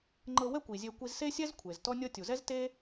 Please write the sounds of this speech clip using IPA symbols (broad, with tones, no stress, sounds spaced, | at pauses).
ŋ͡ǃ ɤ˧ w ɛ˥ kʷ i˩ zʲ e˧ kʷ i˧ z s e˥ sʲ ɛ˥ z kʷʰ e˩ z t ɔ˧ nʲ ɤ˧ tʲ u˩ z ɛ˥ z t e˥